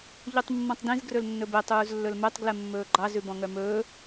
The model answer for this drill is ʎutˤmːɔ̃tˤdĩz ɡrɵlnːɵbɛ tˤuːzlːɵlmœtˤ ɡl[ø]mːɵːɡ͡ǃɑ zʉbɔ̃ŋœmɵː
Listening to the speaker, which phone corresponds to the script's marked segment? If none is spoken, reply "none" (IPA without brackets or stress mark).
ɛ